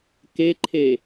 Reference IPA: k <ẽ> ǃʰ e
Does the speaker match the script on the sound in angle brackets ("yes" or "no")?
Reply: no